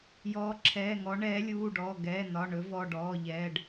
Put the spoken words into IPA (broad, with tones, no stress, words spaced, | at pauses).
jɔː˨˦ ǁʰɛː˩˧˩ŋɔ˨˦ ɳɛː˨˦lʲuː˩˧˩ɖɔː˩˧˩ ɡɛː˩˧˩nɒ˩˧˩ɳɵ˨˦ vɔ˩˧˩ɖɔː˩˧˩ʎɛː˩˧˩ɖ